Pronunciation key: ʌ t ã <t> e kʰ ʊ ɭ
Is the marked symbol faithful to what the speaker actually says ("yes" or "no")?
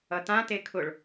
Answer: yes